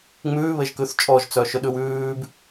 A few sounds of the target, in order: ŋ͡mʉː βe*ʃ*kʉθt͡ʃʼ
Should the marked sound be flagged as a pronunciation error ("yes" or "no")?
yes